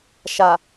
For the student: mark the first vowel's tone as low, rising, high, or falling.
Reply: low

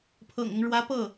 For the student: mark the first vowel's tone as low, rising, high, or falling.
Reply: low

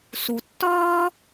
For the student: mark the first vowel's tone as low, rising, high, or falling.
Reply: low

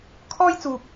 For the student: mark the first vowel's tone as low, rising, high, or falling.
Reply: high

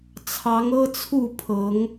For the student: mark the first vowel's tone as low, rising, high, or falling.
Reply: rising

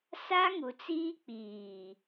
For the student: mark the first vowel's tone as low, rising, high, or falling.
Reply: high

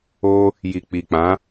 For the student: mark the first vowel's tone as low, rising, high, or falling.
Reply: high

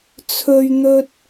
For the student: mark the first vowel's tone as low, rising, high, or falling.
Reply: high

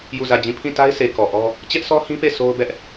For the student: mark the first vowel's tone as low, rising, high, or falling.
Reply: falling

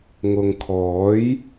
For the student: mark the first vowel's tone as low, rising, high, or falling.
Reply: low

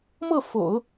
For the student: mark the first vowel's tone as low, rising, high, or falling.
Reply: falling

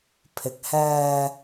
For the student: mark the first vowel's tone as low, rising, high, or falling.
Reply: low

